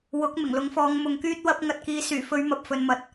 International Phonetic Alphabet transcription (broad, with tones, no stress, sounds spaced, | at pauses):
w ʊ˨˥ k̚ m ɪ˨˩ ŋ l ʊ˨˥ ŋ f ɔː˨˧ ŋ m ʊ˨ ŋ k yː˥ t̚ w ɐ˧ p̚ ŋ ɐ˧ t̚ k iː˨˧ s yː˨˩ f ɵ˧ ɥ m ɐ˨ p̚ f ɵ˨ n m ɐ˨˥ t̚